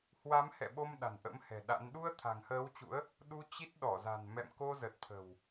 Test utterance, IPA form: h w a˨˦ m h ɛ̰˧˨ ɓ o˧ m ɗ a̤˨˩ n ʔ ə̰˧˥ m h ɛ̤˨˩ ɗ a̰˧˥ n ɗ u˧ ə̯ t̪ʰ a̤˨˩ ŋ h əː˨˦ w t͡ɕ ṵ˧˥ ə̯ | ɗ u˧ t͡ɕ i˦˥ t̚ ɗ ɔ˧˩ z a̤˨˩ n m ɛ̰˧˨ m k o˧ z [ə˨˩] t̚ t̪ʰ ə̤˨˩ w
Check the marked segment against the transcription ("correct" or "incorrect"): correct